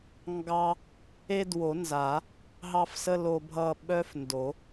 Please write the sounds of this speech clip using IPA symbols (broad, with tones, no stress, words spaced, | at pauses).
ŋɡɑ˦ | e˦dwo˨˩˦nza˨˩˦ | ɦɑ˦fsə˦ lo˦bʱʌ˦ ɓœ˦fndo˨˩˦